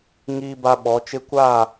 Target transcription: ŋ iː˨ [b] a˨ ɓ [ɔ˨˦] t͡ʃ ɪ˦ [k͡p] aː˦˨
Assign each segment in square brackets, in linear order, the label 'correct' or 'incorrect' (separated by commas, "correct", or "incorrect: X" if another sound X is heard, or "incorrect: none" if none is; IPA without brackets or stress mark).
correct, correct, incorrect: kʷ